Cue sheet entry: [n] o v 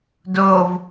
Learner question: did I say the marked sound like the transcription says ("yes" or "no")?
no